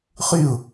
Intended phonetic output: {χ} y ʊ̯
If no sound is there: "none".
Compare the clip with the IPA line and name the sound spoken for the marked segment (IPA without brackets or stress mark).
χ